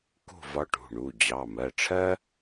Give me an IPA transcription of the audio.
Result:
k ṳ˥˨ v ɒ˧˥ ʈ ṳ˩˧˩ ɳ u˩˧˩ d͡ʑ ɑ˩˧˩ m ɜ˩˧˩ ʈ͡ʂʰ ɜ˥

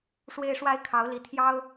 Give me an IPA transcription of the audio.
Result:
ʂ w e˦ ɪ̯ ʂ w a˦ ɪ̯ kʰ ɑ˨˦ ʊ̯ l i˨˦ t̪ʰ j ɑ˦ ʊ̯

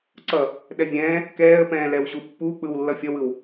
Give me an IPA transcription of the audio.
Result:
ǀ ʌ | ɗ ɛ vʲ ɛ̃ː | k ɛː ə̯ p ɛ̃ː l ɛ w ʑ u pː u k͡p ɯ w lː ʌ fʲ ʌ w ɯ w

